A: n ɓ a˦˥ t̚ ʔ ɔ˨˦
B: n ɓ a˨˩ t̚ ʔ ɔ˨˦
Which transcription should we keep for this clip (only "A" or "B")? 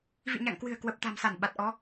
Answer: B